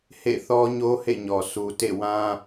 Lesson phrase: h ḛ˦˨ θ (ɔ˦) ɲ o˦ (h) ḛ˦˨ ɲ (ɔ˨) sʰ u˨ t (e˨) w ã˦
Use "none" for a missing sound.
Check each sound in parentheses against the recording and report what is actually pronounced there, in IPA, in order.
ɔ˦, h, ɔ˨, ḛ˦˨

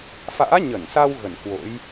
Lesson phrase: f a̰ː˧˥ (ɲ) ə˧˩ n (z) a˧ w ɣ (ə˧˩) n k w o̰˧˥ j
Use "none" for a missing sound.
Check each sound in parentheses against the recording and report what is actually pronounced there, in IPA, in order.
ɲ, s, ə˧˩

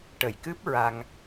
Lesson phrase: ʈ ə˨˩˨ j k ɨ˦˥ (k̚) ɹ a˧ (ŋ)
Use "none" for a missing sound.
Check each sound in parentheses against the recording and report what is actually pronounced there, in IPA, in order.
p̚, ŋ

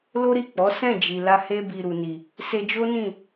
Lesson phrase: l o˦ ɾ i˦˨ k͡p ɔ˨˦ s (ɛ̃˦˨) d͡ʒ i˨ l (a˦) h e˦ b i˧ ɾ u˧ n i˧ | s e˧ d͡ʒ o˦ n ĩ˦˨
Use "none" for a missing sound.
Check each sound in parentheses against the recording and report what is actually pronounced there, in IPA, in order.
ɛ̃˦˨, a˧

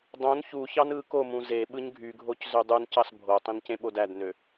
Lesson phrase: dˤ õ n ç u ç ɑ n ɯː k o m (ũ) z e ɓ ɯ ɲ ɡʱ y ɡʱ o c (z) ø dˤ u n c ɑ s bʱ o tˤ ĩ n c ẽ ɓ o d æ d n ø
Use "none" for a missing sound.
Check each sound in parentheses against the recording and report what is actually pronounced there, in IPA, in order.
ũ, z

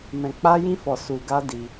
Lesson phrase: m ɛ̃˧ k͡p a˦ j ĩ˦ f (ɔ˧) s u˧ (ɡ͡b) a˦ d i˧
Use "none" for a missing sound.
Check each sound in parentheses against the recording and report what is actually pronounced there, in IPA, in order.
ɔ˧, ɡ

